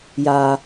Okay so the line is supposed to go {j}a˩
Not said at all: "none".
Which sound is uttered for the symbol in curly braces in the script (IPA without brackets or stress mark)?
j